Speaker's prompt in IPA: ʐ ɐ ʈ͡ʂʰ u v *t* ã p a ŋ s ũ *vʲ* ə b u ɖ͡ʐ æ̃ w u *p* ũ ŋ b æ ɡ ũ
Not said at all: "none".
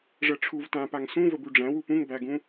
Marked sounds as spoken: t, v, p

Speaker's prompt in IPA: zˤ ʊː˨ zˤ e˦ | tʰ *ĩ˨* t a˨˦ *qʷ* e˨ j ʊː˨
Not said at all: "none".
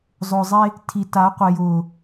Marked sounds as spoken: i˨, qʷ

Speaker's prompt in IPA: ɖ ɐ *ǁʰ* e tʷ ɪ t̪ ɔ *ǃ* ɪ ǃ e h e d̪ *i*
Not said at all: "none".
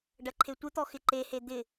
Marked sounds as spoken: ǃʰ, x, ɪ

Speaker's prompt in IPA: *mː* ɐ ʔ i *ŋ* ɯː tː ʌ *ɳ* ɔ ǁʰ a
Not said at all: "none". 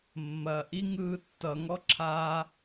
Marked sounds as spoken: mː, ŋ, ŋ

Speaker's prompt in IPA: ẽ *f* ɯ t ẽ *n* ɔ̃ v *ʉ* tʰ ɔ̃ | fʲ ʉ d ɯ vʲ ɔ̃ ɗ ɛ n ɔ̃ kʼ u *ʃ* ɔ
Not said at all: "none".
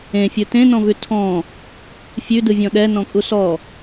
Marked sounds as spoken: fʲ, n, ʉ, s

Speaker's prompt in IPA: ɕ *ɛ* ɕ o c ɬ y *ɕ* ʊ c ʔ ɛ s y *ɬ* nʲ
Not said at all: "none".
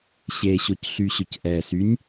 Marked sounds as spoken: e, ɕ, none

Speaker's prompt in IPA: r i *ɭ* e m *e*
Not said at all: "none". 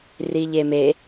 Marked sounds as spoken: ʎ, e

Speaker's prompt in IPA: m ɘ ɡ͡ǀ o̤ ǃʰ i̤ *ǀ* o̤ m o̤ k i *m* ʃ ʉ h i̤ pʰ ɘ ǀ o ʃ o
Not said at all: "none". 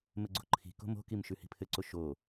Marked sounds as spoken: k, m

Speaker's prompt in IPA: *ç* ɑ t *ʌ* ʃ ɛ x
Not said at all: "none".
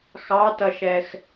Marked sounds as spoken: x, ʌ

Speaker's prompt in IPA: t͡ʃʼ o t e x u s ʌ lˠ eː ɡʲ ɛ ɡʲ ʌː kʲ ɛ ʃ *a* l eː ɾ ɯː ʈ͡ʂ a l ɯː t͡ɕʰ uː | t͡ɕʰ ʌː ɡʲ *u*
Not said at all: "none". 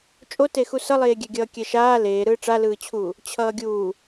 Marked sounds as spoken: aː, uː

